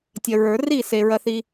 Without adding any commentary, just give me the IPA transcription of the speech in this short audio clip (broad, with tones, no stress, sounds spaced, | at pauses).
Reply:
tʲ ɐ˨ ɹ ə˞˨˩˦ r i˥˨ s e˨ ɹ ɐ˥ θ i˥